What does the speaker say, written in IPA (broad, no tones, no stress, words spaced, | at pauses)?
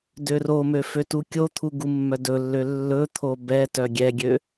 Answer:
døromø føtukʲot̪ʰu ɡumːœdɵlːø lːɵt̪ʰo bɛtœ ɡʲɛɡʲø